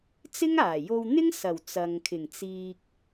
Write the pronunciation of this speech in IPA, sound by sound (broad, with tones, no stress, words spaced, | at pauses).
t͡sɪ˥ŋaː˨˩jo˧w n̪ɪ˥ŋsɐ˨˩w t͡sɐ˨ŋkʰɪ˨˩ŋ t͡siː˨k̚